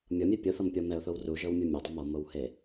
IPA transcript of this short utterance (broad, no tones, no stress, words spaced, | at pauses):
mʲɤmʲe pʲoθɤmpʲɔ mɛʊ̯θow ruʒɤwmʲu mʲadˤɤm ɔmowhe